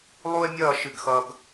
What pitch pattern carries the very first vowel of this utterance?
high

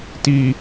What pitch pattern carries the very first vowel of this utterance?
low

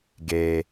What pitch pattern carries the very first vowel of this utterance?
low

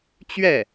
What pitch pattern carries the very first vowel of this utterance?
falling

